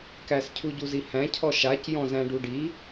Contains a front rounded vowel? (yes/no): no